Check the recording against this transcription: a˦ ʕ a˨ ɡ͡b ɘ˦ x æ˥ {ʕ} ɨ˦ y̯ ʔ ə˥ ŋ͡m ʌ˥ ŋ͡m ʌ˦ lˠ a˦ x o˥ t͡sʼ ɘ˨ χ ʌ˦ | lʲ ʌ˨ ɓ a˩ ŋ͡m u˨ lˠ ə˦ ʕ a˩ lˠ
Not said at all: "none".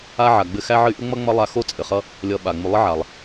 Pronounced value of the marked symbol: ʕ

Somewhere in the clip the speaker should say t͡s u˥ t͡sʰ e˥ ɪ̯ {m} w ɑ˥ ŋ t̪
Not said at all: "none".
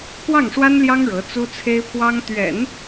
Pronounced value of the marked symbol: pʰ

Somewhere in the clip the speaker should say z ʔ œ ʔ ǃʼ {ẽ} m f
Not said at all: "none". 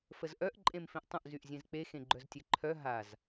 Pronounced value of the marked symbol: ẽ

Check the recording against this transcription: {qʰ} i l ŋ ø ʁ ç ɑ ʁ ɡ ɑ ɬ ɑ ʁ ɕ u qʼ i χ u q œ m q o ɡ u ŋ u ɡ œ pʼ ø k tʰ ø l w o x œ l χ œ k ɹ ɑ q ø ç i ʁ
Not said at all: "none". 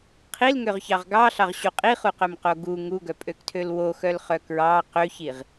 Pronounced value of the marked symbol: qʰ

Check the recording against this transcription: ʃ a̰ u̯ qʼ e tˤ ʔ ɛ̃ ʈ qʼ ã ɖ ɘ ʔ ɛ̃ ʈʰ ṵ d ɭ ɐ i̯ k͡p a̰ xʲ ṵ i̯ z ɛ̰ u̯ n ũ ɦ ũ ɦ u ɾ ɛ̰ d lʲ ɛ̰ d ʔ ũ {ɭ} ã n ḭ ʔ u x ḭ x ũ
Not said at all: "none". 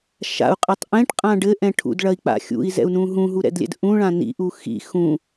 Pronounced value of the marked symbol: ɭ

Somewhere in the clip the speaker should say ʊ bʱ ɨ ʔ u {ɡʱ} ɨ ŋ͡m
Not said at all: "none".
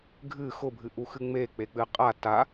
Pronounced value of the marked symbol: x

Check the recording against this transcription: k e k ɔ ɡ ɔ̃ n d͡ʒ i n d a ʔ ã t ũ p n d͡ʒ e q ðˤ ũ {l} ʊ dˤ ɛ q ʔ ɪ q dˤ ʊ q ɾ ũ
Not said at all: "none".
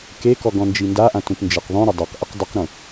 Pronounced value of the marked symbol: ɾ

